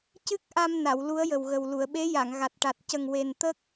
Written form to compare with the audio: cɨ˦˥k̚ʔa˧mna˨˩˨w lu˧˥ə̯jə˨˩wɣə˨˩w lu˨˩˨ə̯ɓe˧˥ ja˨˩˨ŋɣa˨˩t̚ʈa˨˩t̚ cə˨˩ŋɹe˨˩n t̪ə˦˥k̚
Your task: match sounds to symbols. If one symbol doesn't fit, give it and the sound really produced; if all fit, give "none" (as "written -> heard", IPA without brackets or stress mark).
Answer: ɹ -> w